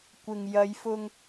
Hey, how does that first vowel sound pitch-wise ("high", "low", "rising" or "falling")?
low